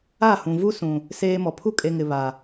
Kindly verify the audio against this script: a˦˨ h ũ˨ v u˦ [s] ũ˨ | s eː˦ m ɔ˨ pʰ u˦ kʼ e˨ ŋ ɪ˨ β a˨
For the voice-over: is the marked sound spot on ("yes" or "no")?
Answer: yes